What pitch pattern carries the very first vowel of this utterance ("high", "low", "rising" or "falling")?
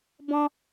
high